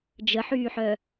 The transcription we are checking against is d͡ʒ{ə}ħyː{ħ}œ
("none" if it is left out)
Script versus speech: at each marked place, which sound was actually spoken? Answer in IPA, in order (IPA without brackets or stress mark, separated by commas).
ə, ħ